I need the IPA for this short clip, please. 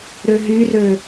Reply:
ɾ ø ɦ y r ø

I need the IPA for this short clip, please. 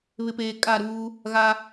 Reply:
β ɪ˨ p eː˨ kʼ a˦˨ ɾ uː˦ | ɣ a˦

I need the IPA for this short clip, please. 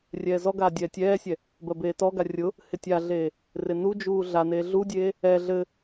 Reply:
rʲ ɛː z ɔ ɡ aː dʲ ɛː tʲ ɛː sʲ ɛ | b ɜ b eː t ɔ ɡ a rʲ ʊ | h ɪ tʲ a ɮ eː | r ɪ n u d͡ʒ uː ɮ a n eː ɮ u dʲ eː | ɛ ɮ ɘ

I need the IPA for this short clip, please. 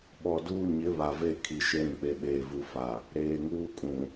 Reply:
ɓ ɔ˨ d uː˦ ɲ ɪ˨˦ β a˨ v e˦˨ kʰ i˨ ʃ e˦ ɾ ĩ˨ k͡p e˨ ɓ eː˨ v u˨ f a˨ | ɾ eː˨ ŋ uː˦ kʼ ũ˨

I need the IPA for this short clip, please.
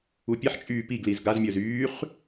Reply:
u pʲ ɛ ħ t͡ʃʼ yː p i ɡ l i z ɡ a z mʲ əː z yː χ

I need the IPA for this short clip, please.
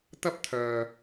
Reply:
t̪ ɐ˥ p̚ t̪ʰ œː˨

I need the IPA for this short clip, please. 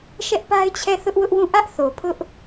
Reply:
ʃ ɛ˦ ʔ p a˦ ɪ̯ t͡ɕʰ ɛ˦˨ θ ʊ˦ ʔ w ʊ˦ ʔ w ũ˦˨ ʔ ä˦ ʔ θ o˨ pʰ ʊ˦ ʔ

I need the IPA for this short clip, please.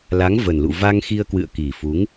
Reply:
l a˨˦ ŋ v ə˨˩ n l ṵ˧˨ v a˧ ŋ x i˧ ə̯ k w ɨ̰˧˨ ə̯ k i˨˩ f u˨˦ ŋ

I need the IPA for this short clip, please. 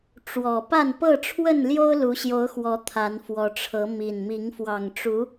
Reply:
ʈ͡ʂ w ɔ˨˩ p a˥˨ n p ɤ˥˨ ʈ͡ʂʰ w ə˥˨ n l j o˦ ʊ̯ l u˨˦ ɕ j o˨˦ ʊ̯ x w ɔ˨˦ t̪ʰ a˨˦ n f w ɔ˨˦ ʈ͡ʂʰ ɤ˨˦ m i˨˩ n m i˨˦ ŋ f w ɑ˨˩ ŋ ʈ͡ʂ u˨˦

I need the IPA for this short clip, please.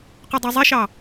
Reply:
q ʊ dˤ u zˤ e ʃ ɑ

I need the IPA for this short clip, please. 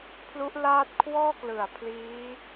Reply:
pʰ l u˦˥ ʔ l aː˥˩ t̚ kʰ w ɔː˥˩ k l ɯ˨˩ a̯ pʰ l iː˦˥

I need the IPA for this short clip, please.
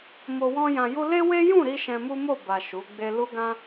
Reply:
m o˧ w ɔ̃˦ j ã˧ j u˦ l e˦ w e˦ j ũ˦˨ ɾ i˧ ʃ ɛ̃˧ m u˦ m o˦˨ b a˨ ʃ u˨˦ ɡ͡b e˦ l u˦ ɡ ã˦

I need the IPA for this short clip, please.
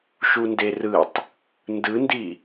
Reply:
ʃ u n d e r ɯ tˤ | n d ɯ n d i

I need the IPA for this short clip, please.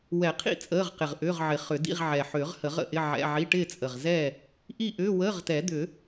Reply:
w ɛ˨˩˦ qʰ ḭ˥˨ t͡sʼ əː˧˥˧ ʁ q ɪ˨˩ ʁ ʔ ʏː˧˥˧ ʁ ʕ ɪ˨˩˦ χ ʏ˨˩˦ d ḭ˧˥˧ ʁ ʕ ɛ˨˩ ħ ʏː˨˩˦ ʁ h ə˨˩˦ ʁ ə̰˥˨ ʔ ɪ˧˥˧ ʕ ɛ̰˧˥˧ ʕ i˧˥˧ ʈ ɪː˥˨ t͡sʼ ə˨˩ ʁ z ɛː˥˨ | ʔ i˥˨ ʔ ʏː˧˥˧ w əː˧˥˧ ʁ t ɛ˨˩˦ d̪ ʏː˨˩˦

